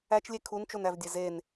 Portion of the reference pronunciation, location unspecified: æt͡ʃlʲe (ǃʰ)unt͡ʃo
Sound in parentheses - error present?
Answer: yes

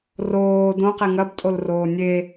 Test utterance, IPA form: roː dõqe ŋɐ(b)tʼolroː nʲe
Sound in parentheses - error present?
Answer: no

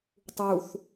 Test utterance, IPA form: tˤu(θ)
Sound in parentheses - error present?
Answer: no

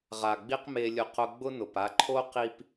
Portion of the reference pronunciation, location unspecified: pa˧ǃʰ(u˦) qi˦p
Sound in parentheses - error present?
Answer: yes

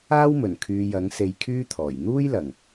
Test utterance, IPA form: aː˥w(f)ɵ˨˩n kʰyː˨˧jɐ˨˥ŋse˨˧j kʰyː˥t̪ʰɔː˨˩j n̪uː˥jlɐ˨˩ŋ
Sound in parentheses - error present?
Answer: yes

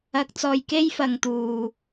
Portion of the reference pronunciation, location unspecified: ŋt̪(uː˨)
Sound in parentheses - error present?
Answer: no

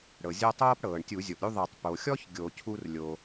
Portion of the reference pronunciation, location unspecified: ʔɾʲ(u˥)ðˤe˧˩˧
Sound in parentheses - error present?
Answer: no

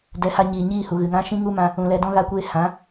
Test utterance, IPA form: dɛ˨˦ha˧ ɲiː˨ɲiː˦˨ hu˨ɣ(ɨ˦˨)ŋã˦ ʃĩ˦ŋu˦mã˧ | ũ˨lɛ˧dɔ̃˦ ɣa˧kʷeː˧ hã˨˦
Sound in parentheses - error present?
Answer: yes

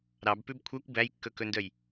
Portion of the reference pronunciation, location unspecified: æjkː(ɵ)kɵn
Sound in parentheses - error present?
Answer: no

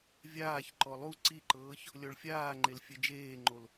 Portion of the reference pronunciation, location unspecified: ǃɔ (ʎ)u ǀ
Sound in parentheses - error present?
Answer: yes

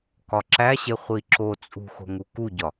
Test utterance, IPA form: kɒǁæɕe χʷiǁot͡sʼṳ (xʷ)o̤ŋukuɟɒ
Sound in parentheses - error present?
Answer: yes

